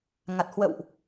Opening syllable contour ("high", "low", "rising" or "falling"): low